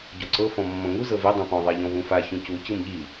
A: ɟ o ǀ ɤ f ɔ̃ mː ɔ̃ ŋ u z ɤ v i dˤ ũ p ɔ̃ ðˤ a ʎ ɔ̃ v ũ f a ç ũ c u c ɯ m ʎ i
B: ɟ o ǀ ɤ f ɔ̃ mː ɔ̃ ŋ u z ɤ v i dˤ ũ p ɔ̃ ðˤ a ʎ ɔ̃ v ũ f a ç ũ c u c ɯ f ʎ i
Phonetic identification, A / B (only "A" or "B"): A